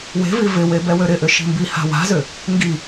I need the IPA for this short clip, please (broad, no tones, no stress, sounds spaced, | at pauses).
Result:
w e̤ v i v ɪ w e b ɛ w ø ɾ ɪ ʔ ʏ ʃ i̤ m b i h a̤ w a̤ z ʏ | ŋ ɡ i